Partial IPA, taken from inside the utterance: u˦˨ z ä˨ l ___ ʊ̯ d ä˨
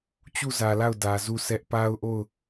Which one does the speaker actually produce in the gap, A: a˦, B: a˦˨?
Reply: B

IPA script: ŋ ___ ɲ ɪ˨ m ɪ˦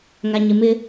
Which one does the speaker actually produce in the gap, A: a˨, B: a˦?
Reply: A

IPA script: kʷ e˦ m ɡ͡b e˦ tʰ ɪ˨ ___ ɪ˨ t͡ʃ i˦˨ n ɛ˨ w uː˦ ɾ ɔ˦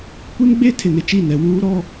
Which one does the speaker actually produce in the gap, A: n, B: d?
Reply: A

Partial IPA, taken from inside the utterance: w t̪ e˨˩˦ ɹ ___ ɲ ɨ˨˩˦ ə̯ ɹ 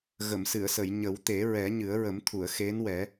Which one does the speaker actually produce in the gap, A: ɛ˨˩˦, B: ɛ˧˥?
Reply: A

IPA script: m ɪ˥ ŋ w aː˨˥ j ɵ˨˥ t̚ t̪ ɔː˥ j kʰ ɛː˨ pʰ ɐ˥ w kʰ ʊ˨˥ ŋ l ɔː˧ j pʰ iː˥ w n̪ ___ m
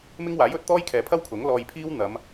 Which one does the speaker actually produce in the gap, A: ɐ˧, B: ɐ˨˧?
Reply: B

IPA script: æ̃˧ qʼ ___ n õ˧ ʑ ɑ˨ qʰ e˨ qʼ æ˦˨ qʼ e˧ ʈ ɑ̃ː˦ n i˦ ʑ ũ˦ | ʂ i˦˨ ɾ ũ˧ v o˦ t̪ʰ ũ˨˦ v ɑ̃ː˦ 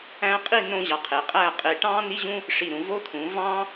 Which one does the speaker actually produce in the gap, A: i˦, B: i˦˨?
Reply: B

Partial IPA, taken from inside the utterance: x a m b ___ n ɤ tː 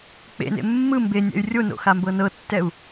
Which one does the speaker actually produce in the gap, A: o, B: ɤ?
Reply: B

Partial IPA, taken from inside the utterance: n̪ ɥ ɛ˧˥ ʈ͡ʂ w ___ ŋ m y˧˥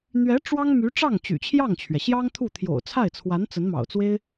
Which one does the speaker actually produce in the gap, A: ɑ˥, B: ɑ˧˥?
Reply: A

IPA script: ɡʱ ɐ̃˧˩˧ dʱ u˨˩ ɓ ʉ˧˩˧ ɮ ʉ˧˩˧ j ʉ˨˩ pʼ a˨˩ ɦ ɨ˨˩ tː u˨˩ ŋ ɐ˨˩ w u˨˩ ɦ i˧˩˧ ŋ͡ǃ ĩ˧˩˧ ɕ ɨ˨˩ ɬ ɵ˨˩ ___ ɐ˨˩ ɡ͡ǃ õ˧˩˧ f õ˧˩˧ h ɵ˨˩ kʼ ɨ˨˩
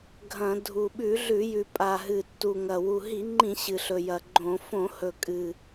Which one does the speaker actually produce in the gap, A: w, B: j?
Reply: B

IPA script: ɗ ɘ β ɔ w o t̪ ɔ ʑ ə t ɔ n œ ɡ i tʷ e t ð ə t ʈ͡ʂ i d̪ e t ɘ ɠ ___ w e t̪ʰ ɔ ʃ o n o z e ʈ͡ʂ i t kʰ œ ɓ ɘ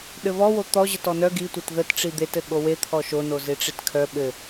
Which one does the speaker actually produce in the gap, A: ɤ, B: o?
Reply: B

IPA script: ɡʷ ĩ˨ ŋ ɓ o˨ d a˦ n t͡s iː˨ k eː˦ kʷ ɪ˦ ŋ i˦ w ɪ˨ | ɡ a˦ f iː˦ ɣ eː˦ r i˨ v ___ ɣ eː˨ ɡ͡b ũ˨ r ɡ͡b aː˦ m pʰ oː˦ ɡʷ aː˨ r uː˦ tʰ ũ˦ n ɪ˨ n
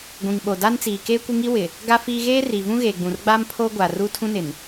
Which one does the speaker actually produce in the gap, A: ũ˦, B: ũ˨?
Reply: A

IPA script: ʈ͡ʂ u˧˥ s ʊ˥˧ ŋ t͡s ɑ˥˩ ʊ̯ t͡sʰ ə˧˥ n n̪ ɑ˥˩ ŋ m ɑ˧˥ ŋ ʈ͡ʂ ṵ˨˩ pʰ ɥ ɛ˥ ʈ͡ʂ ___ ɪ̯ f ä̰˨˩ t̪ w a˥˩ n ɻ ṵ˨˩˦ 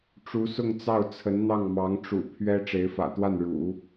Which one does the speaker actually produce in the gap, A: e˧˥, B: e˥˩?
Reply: A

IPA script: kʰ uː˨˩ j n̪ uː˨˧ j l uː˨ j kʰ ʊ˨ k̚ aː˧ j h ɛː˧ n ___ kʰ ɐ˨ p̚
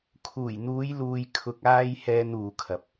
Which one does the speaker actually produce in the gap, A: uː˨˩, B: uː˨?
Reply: B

